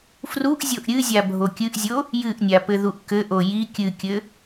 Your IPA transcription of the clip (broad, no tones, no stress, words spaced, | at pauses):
fruʔ zʲoʔɾʲɨzʲa bʱokʲɨʔzʲo | jɨʔnʲa pɘðuʔkɘʔo ji kʲɨkʲɘ